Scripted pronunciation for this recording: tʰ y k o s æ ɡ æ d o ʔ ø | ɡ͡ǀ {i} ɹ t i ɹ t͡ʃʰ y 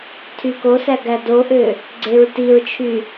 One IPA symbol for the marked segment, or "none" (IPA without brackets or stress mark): e